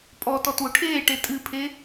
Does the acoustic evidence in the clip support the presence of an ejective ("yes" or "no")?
yes